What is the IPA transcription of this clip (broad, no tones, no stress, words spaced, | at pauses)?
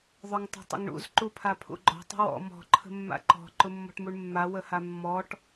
ðˤʊŋtˤə̤tˤə̰ŋɳṵz ǃupʰapʰṵɡ͡ǃɔ̤ tˤə̤wɔ̰ mɔ̤ ǃʰə̤mːa̰ǃɔ̤ ǃʊmːɔ̤ʈmuɳmːa wəhamːɔʈ